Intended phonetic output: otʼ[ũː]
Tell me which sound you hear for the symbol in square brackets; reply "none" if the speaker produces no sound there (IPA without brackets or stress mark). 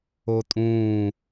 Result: ũː